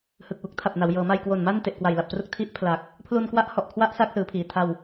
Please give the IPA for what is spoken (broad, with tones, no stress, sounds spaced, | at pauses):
h ɯ˨˩ k̚ w u˦˥ k̚ tʰ a˨˩ p̚ n a˩˦ w j ɤː˩˦ m a˧ j k w o˨˩ n m a˥˩ n t e˨˩ ʔ k w a˨˩ j l a˨˩ p̚ t r u˦˥ k̚ tʰ i˦˥ ʔ pʰ l a˨˩ k̚ | pʰ l u˧ n k w a˦˥ ʔ h ɔ˨˩ ʔ kʰ w a˦˥ ʔ s a˦˥ k̚ s ɯː˩˦ pʰ iː˩˦ tʰ a˧ w